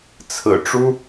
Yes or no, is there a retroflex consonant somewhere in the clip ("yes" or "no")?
yes